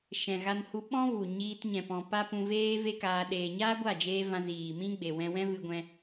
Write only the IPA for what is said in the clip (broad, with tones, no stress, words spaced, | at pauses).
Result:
ʃɛ̃˨ɣa˧nhu˧ ɓɔ̃˦vu˨ ɲiː˧tɲɛ̃˨pɔ̃˨ pa˦pũ˧ veː˦ve˦kaː˧ ɗeː˨ɲaː˦ɡʷa˦˨d͡ʒeː˧ vã˧ziː˨mĩ˦ ɡ͡be˨wɛ̃˧ wɛ̃˦vɨ˧ɡʷɛ̃˧